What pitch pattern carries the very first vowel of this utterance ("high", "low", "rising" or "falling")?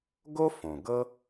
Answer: high